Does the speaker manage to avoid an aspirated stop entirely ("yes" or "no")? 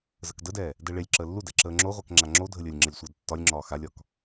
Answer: yes